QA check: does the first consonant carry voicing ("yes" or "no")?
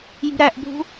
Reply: yes